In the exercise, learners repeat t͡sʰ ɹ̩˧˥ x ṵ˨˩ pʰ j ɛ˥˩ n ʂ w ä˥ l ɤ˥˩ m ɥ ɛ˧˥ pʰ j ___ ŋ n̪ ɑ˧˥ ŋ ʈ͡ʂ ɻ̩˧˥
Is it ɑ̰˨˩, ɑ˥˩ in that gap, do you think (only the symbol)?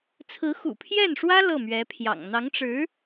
ɑ̰˨˩